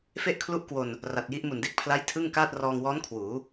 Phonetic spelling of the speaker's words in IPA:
f e˥˩ ʔ kʰ l u˥˩ ʔ k w o˧ n | r a˨˩ t̚ j i˦˥ ʔ m u˨˩ n d e˦˥ k̚ pʰ l a˦˥ j tʰ ɯ˥˩ ŋ k aː˥˩ t̚ r ɔː˧ ŋ w ɔː˦˥ n kʰ w uː˩˦

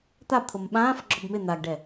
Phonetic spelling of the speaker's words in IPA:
t̪ a b t̪ʰ o m ɓ ãː f ɡ͡ǁ ɔ b m ɪ n̪ a ɡ ɖ ɛ

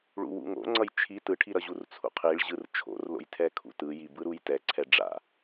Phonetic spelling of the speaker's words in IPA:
ɭ ṵ w ṵ ŋ o̰ ŋ͡ǀ ʌ j t͡ʃʰ i t ɯ ʈʰ i ɾ ʌ ʑ u r t͡sʰ ṵ qʰ i ɭ ʑ ɯ r t͡ʃʰ o̰ r l o̰ j tʰ ɛ kʰ ṵ t ɯ j i b ɯ ɾ u j t ɛ ǀʰ ɛ ɖ͡ʐ a̰

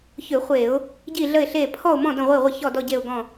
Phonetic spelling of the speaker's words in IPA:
ç ʏ˧˩˧ χʷ e˧˩˧ ʊ̯ | ɟ i˦˨ ɮ ə˦˨ ɪ̯ ɬ e˦˨ pʰ ɔ˦˨ ʊ̯ m ɔ̃˦˨ d ə̃˦˨ ʁʷ i˦˨ ʁʷ ə˦˨ ç ɔ˦˨ d ɔ˦˨ ɟ e˦˨ ʊ̯ ɡ ɔ̃˦˨

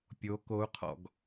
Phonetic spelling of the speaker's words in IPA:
pʲ o k o u̯ qʰ ɔ̰ ɡ

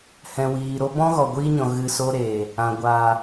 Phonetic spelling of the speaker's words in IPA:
h ɛ̃˨ w iː˨ ɾ o˦ b ɔ̃˦ ɣ ɔ˨ ɡʷ iː˦ ɲ ɔ̃˨ ɣ ɨ˧ s o˦ ɾ e˨ | ã˨ ɡʷ a˨

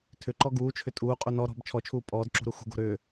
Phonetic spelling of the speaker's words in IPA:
tʰ ʏ ǃ ɔ ɡ uː t͡ʃʰ ʏ tʼ uː qʼ u n ɔ ɾ ɔ̤ b t͡ʃʰ ɔ t͡ʃʰ uː pʼ ɔː d ǁ ṳ ɾ u x ṳ ɡ o̤ ɾ ʏː

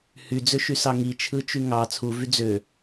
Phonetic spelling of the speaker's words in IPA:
h y d͡z ø ʃ y s ɑ ŋ i t͡ʃʰ ɯ t͡ʃ y ŋ ɑ t͡sʰ u v y d͡z ø

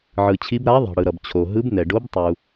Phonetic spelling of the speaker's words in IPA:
ʕ ɯ˩ t͡ɕʰ i˨˦ b ɾ a˨˦ ðˤ ɛ̤˩ ɽ ɯ˩ ɾ ʌ˩ b t͡ɕʰ o˩ ɦ ɯ˨˦ b n ɛ˩ ɖ o˨˦ b tˤ u˩

